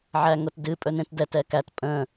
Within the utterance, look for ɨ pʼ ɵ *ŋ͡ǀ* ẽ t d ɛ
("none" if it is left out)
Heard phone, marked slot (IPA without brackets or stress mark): n